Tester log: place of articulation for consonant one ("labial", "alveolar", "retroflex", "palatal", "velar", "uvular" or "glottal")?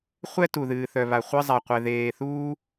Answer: uvular